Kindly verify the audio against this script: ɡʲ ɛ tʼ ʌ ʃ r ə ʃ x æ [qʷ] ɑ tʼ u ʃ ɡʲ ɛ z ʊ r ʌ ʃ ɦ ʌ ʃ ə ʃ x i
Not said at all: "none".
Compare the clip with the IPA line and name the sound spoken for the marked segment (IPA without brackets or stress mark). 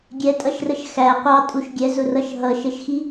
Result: qʷ